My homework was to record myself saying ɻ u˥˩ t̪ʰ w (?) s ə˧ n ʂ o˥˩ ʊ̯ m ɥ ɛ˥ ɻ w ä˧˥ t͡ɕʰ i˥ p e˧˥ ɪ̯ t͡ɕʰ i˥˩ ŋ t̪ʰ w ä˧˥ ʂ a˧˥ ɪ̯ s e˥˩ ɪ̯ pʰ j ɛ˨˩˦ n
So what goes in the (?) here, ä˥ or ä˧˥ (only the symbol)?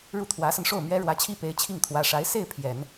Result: ä˧˥